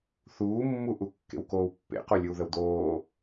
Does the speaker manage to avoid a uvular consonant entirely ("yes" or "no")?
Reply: no